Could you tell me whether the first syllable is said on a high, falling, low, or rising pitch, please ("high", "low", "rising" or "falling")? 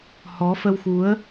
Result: rising